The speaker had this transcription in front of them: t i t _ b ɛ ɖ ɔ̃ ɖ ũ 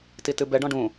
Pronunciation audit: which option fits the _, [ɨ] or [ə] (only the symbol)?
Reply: ɨ